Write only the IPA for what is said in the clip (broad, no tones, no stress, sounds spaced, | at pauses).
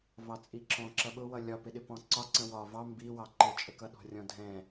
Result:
v ɑ t͡sʼ i ǁ ɔ̃ ǁ ʌ ɓ ʊ w ʌ lʲ ɒ p ɪ ɗ ɪ p ɔ̃ ǀ ɒ ǀ ə̃ w ɒ v ɑ m b i w ɑ ǃ ɪ t͡ʃʼ ə k ʌ ɗ ɔ̤ rʲ ɔ̃ dʱ ɛ̃